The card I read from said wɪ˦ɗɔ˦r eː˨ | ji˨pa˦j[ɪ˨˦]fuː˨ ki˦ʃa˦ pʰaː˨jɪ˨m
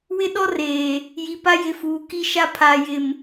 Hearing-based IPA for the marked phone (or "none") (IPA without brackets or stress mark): ɪ˨˦